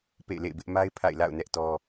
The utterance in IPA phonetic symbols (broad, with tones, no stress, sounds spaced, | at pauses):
p ḛ˦˨ ɪ̯ l ḛ˦˨ ɪ̯ b ɪ˦ ʔ m a˦ ɪ̯ pʰ a̰˦˨ ɪ̯ l a̰˦˨ ʊ̯ n ɛ˦ ʔ t ɔ˦